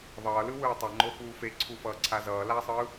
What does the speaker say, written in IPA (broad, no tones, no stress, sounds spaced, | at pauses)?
ðˤ ʌː l ɯ w ɯː tˤ ʌ ŋ͡ǃ o f uː f e ǀʰ u f ʌː ǀʰ a z ʌː l a sˤ ɯː